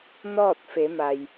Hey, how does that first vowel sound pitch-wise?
falling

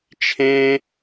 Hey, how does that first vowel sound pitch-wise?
high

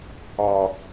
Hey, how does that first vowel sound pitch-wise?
low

